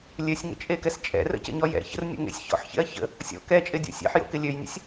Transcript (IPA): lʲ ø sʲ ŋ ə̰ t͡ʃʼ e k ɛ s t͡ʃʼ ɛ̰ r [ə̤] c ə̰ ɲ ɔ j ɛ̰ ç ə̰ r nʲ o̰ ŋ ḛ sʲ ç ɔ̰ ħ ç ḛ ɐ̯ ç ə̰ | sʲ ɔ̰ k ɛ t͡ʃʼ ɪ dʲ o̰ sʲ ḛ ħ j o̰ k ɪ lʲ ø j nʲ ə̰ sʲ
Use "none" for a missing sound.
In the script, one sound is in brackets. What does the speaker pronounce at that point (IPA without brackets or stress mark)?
ə̰